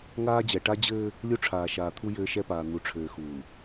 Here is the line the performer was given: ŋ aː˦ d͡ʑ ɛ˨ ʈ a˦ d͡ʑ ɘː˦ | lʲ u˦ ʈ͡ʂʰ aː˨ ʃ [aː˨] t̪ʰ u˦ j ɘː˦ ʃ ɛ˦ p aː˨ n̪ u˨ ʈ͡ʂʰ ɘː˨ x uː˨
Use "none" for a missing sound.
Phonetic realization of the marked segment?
aː˨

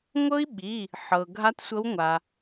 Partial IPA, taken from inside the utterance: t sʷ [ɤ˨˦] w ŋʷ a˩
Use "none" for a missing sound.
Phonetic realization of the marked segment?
ɤ˨˦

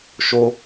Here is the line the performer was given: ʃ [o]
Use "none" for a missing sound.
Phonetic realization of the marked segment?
o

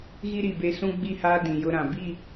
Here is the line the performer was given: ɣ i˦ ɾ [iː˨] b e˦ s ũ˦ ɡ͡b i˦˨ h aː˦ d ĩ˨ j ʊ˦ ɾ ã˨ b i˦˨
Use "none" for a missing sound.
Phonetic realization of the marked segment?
i˨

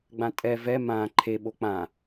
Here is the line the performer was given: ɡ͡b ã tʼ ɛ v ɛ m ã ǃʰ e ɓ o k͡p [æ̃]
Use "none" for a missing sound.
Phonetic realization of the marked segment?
ã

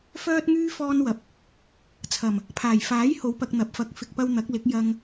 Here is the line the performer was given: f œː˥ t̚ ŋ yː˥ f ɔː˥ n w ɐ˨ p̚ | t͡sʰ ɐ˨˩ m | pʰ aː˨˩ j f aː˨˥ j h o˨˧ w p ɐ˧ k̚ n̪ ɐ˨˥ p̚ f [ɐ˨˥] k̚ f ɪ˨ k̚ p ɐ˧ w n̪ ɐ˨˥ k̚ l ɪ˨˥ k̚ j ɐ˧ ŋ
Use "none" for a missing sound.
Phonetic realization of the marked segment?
ɐ˨˥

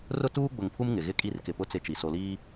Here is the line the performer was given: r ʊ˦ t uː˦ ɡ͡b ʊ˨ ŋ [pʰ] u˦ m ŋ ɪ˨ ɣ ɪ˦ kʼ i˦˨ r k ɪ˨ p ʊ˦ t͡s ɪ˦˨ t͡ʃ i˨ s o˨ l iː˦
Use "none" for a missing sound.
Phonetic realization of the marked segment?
pʰ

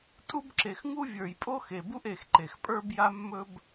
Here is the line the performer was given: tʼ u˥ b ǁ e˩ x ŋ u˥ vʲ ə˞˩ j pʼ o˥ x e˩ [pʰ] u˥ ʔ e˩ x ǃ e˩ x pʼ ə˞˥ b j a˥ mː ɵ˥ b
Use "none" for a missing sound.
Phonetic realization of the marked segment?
b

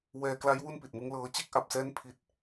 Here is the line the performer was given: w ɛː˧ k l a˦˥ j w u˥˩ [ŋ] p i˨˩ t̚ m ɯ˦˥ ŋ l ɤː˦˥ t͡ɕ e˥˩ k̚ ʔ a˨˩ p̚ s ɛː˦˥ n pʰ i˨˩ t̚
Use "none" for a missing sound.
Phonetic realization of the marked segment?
n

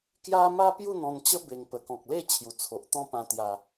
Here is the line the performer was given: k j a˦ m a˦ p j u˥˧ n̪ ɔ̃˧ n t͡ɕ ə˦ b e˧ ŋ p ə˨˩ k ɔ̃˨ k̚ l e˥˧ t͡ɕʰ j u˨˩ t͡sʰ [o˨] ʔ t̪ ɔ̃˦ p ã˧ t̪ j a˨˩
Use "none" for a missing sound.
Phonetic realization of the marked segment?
o˨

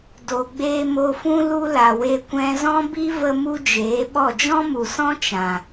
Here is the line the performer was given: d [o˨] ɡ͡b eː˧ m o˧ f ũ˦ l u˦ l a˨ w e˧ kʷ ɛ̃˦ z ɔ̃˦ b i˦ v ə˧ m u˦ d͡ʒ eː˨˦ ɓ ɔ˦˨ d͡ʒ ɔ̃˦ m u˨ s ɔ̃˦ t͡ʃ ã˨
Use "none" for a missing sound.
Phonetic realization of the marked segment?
o˨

